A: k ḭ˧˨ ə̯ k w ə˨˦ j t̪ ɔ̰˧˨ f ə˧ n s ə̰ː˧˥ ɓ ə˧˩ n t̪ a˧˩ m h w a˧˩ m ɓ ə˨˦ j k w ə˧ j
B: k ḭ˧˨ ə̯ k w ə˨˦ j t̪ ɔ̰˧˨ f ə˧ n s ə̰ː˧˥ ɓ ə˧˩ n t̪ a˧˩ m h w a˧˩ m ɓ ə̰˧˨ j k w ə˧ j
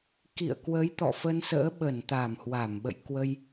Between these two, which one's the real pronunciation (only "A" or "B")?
B